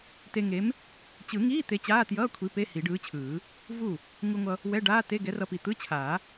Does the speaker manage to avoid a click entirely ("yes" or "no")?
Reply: yes